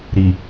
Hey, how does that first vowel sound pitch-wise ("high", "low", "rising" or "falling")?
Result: low